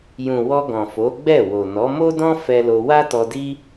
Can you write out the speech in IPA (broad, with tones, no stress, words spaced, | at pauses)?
jũ˨ wɔ˧ɡɔ̃˨fo˨˦ ɡ͡bɛ˦˨ wo˨ nɔ˨˦ mo˦dɔ̃˦ fɛ˦lo˧ wa˦tɔ˧di˦